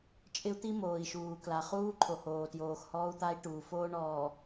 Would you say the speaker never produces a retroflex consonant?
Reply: no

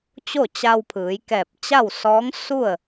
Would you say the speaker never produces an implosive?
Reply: yes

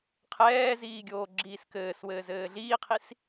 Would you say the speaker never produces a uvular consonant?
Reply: no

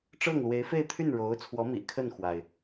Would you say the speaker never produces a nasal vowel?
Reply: yes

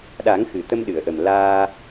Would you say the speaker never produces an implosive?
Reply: no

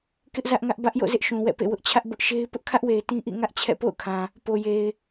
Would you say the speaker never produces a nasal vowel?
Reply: no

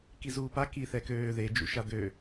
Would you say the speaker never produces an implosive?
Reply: yes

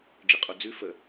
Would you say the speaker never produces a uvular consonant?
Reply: no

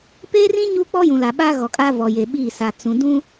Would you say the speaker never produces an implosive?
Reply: no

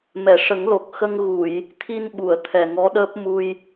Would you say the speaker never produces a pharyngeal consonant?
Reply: yes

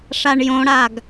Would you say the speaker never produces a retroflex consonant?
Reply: no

